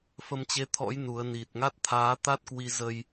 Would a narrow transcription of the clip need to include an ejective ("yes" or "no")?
no